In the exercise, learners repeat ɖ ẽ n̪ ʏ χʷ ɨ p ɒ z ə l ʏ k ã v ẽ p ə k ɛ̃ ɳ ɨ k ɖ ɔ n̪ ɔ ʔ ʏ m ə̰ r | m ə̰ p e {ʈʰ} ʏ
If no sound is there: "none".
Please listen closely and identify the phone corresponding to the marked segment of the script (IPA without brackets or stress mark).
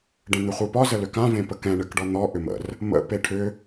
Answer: ʈʰ